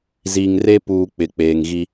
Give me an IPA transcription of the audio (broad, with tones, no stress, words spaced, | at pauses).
zi˨ŋre˦puː˨ k͡pɪ˨ k͡peː˨ŋɣi˦